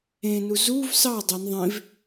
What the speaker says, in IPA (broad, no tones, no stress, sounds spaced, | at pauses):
ẽ n u z u v s ɑ dˤ e n ðˤ ẽ v